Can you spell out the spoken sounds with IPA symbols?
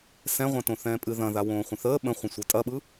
s ɛ̃ ʁʷ ɛ̃ t õ θ ɛ̃ː pʼ ɨ ð ɐ̃ ð a w õː χʷ ə̃ θ əː ɓ ə̃ χʷ ə̃ sʷ ɯ tʼ ɐ ɓ ɯ

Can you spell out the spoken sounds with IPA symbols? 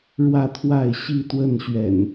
ɻ w ä˥˨ t̪ʰ w a˥˨ ɪ̯ ɕ i˥˨ t̪ w ə˥˨ n ɕ ɥ ɛ̰˨˩ n

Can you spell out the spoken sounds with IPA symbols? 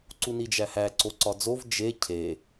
ǀ u n i d͡ʒ æ h æ ǀ o ǀ ɒ d͡z o v d͡ʒ e cʰ e

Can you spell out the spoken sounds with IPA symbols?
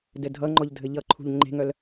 d ɘ dʱ ʌ ŋ͡ǃ ɔ ʎ dʱ ɘ ʎ ʌ ǃʰ ṳ ʎ ŋ͡ǃ e̤ ŋ œ l

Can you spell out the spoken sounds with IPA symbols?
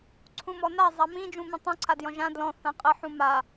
ǀʰ ũ m ɔ n a zˤ a m ĩ d͡ʒ ũ m ĩ tˤ ũ ǀʰ a d j ɔ̃ ʒ ã d l ɔ̃ θ ã qʼ ə ħ ũ m a

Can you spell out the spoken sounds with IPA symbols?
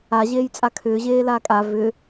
a ʑ eː j t͡sʼ a kʰ ʏː ʑ eː l aː kʼ a v ʏ

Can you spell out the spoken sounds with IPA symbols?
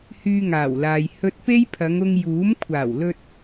h yː˧ ŋ aː˨˩ w l aː˨ j h ɵ˧ t̚ p e˥ j pʰ ɐ˨˧ ŋ ʊ˧ ŋ j uː˨˥ m kʷʰ aː˨˩ w l ɵ˧ t̚

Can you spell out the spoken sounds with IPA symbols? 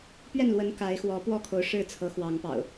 p ɥ ɛ˥˨ n l w ə˨˦ n k a˨˦ ɪ̯ x w ɔ˨˦ p w ɔ˥˨ kʰ o˨˦ ʊ̯ ʂ ɻ̩˥˨ t͡sʰ ɤ˨˦ x w ɑ˨˦ ŋ p ɑ̰˨˩ ʊ̯

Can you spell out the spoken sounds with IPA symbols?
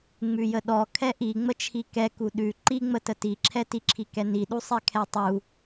ŋ͡m ʉ j ə ɗ ɔ kʰ ɛ ʔ i ŋ͡m ə t͡ʃʰ i k ɛ k u ɗ ʉ ǃ i ŋ͡m ə t ə t i ǁʰ ɛ t i ǁʰ i k ɛ n i ɗ u sˤ ɛ kʰ ɛ tˤ u

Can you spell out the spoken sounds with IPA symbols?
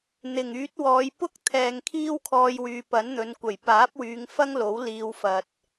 n̪ ɪ˨˩ ŋ yː˨˥ t̚ w ɔː˨˧ j p ʊ˥ k̚ t̪ʰ ɛː˨ ŋ kʰ iː˥ w kʰ ɔː˧ j w yː˨ p ɐ˨˥ n n̪ ɵ˨˧ n kʷ ɐ˨˩ j p aː˨˥ p̚ w yː˨˧ ŋ f ɐ˥ ŋ l o˨˥ w l iː˧ w f ɐ˨ t̚

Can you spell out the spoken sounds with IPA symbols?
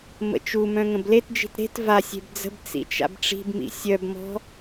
m ə̰ t͡ʃ u m œ̃ ŋ ə̃ b l e t d͡ʒ i̤ t ɾ e̤ t v a sʲ e̤ b d͡z ə̤ b t͡s ḭ t͡ʃ a̰ b ʈ͡ʂ i̤ b m ḭ sʲ œ b m ɔ̤

